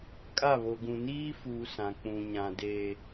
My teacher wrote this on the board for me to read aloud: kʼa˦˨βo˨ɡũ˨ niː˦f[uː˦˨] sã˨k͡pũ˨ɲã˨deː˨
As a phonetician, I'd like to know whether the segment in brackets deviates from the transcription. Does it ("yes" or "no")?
yes